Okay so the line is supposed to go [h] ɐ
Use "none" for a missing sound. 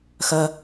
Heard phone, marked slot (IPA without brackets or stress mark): x